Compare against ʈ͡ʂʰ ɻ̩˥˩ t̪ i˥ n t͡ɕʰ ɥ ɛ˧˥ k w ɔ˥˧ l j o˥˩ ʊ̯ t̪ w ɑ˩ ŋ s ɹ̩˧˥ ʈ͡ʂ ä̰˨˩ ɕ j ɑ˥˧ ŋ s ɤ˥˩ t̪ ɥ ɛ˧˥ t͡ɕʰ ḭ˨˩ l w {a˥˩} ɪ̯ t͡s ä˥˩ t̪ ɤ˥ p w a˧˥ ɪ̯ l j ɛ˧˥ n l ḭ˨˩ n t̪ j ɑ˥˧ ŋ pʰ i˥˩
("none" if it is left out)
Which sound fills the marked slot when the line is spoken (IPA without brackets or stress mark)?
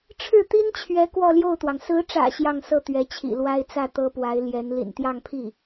a˥